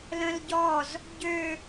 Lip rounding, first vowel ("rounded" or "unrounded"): unrounded